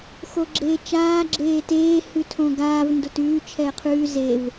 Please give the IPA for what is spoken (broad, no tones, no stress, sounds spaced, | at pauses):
x o ɡ͡ǁ eː t͡ʃ aː ɡ͡ǁ eː t eː h ʉ tʰ õ ɡ aː v n d o t ʉː t͡ʃʰ ɛː qʰ ʉː z e v